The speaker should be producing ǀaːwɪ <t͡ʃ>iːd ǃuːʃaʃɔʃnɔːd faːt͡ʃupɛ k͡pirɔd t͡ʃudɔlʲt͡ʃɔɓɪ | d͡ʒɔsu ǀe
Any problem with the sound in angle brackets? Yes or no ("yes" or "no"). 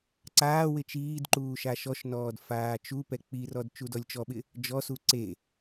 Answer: no